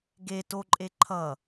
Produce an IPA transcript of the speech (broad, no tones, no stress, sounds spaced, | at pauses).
ɡ e t o ǃʼ e ǃʰ ʌ